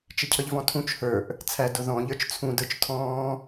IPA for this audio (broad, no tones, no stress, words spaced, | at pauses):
t͡ʃɪcʰʌʎvɔ̃tʰũt͡ʃ hə˞ʔ | t͡sʰæd ʊðɔ̃ ʎə˞t͡ʃt͡sʰũdə˞t͡ʃ tʰɔ̃ː